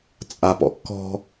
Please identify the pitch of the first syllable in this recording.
low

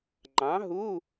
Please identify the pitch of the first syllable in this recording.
rising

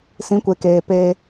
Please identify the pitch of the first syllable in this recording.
rising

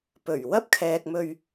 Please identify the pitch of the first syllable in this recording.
low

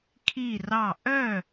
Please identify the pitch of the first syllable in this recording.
falling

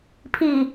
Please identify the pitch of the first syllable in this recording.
low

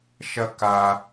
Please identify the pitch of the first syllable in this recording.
high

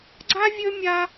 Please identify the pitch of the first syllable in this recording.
high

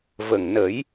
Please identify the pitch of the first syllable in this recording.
low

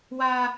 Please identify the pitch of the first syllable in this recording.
high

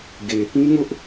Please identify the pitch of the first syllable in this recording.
low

